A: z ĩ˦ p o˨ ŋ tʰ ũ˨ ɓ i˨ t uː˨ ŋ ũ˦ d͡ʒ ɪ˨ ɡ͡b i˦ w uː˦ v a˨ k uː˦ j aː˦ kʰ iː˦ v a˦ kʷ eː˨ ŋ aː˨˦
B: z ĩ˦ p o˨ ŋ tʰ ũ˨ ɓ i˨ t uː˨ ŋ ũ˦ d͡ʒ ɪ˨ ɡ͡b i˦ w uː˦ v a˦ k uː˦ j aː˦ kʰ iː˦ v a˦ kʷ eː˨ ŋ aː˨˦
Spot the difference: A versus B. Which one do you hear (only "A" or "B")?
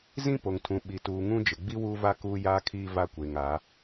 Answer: B